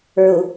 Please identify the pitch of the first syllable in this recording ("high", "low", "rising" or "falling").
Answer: low